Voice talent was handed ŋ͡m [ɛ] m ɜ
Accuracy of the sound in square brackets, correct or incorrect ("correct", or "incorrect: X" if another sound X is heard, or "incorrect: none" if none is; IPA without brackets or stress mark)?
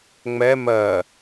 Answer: correct